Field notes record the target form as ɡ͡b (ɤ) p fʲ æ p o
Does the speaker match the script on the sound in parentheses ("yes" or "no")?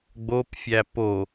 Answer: no